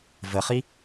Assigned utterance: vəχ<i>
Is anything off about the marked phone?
no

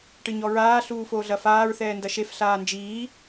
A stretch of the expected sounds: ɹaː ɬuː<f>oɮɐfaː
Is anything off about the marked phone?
no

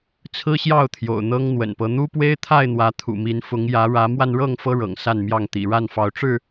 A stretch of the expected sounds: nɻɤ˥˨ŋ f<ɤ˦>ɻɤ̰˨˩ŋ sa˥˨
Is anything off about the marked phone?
no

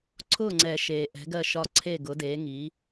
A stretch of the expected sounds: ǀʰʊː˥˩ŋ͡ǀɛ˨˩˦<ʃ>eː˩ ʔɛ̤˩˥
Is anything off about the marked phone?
no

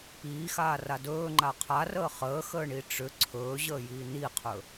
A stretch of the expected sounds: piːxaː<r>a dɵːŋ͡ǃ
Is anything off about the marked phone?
no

